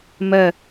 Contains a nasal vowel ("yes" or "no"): no